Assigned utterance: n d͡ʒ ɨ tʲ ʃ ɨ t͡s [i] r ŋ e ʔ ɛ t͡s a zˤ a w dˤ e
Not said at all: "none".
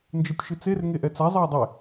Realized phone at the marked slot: e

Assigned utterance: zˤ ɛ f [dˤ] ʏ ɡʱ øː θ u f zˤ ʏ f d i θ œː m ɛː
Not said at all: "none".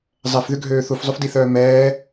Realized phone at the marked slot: ð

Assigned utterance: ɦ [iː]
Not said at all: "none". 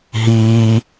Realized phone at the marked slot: iː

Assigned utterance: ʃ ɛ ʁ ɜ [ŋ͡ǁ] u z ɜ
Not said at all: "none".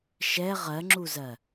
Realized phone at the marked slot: ŋ͡ǁ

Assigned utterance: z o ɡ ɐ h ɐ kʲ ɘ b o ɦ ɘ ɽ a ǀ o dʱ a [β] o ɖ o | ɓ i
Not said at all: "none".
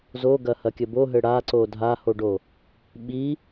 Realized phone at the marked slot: h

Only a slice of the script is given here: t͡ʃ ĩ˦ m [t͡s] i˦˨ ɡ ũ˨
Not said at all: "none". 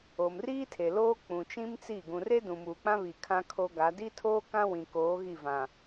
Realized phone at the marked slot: t͡s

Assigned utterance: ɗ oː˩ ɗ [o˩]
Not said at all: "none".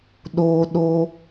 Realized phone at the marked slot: o˩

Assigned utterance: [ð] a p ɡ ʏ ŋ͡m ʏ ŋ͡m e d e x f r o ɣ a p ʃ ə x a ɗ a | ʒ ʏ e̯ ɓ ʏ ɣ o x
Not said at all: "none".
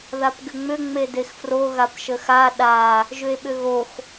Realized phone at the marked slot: ð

